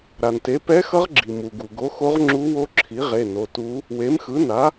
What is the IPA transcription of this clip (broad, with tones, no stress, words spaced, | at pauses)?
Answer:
ɾa˩nte˩˥ pɛ˧˥xʌ˧˥ʁ ɡ͡ǁi˩mu˩ɡu˩ ɡo˩˥xo˧˥ʁŋ͡ǁu˧˥wo˧˥ ǁʰi˩˥ʁe˩˧˩ no˩˧˩tu˧˥ | we˩˥mxɯ˩˥na˩˥